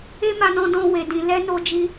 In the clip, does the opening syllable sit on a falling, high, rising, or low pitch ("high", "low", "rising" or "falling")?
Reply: high